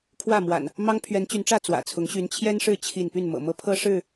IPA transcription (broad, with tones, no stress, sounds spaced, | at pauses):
kʰ w ä˥˨ m w a̰˨˩ n | m ɑ˦ ŋ pʰ ɥ ɛ˨˦ n t͡ɕ y˨˦ n ʈ͡ʂ ä˥˨ t͡s w ä̰˨˩ t͡sʰ ʊ˨˦ ŋ ɕ y˨˦ n t͡ɕʰ j ɛ˦ n ʂ ɻ̩˥˨ t͡ɕʰ i˥˨ n p y˥˨ n m ɤ̰˨˩ m ɤ˦ pʰ ɤ˦ ʂ ɻ̩˥˨